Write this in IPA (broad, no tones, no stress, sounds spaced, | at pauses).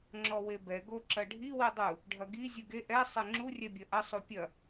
ŋ͡ǁ ɔ w e b ɛ ɡ o ǁ ɐ ɖʱ i w i dˤ u | ɖʱ ɐ ɡ i zʲ u ɡ e ʔ ɛ sˤ e ŋ͡ǁ u rʲ ɛ bʲ ɐ ʔ ɐ sˤ u pʲ ɐ